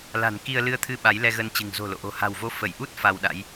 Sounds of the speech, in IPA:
l a̤˨˩ n k i˧ ə̯ l ɨ˧ ə̯ t̪ʰ ɨ˧ ɓ a˨˦ j l ɛ˧ ɣ ə˧ n t͡ɕ ɨ̤˨˩ ŋ z o̤˨˩ l o̰˧˨ ʔ o̤˨˩ h a̤˨˩ w v o˧ f ə˧˩ j ʔ u˦˥ t̚ f a˧ w ɗ a̰˧˥ j

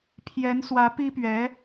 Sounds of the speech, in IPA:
pʰ j ɛ˧˥ n s w ä˧˥ p i˥ p ɥ ɛ˧˥

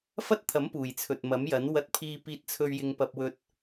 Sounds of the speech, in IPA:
f ɐ˥ t̚ t̪ʰ ɐ˨˥ m p uː˨˩ j t͡sʰ ɵ˨ t̚ m ɐ˨˥ m j ɐ˨˥ n w ɐ˧ t̚ pʰ iː˧ p iː˧ t̚ t͡sʰ ɵ˧ ɥ j ɪ˧ ŋ p ɐ˧ p̚ w ɵ˧ t̚

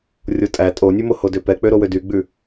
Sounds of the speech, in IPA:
rʲ o tʼ æ tʼ o nʲ ʉ m o h o d ø p ɛ k͡p ø ɾ o w ø d y ɡ͡b ʉ

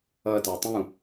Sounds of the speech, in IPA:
ʌ t a tˤ ũ

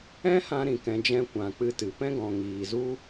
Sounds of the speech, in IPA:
ɛ̃˦ h ã˧ ɾ ĩ˨ k ɛ̃˨ d͡ʒ ɛ̃˧ kʷ ã˨ k͡p ɨ˧ t ɨ˨ p ɛ̃˦ ɡ ɔ̃˨ ŋ iː˨ z u˦

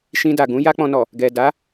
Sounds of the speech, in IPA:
ʃ ĩ˧ d a˨ ɡ ũ˨˦ j a˦ k͡p ɔ̃˧ n ɔ˨ | ɡ ɛ˨ d a˨˦

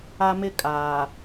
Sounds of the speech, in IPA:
a˦ m ɪ˦ kʼ aː˨

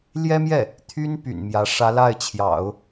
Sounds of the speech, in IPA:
l j ɛ˥ m j ɛ˥˩ | t̪ʰ y˥ n p y̰˨˩ n m j ä˧˥ ʂ ä˧˥ l a˥˩ ɪ̯ t͡ɕʰ j ɑ̰˨˩˦ ʊ̯

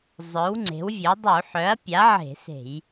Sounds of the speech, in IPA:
zˤ œ˩˥ w ŋ͡ǀ e̤˩˥ w vʲ œ˩˥ dˤ u˧˩˧ ħ œ˩˥ ɐ̯ pʲ a˩˥ ʕ e̤˧˩˧ s e̤˧˩˧ j

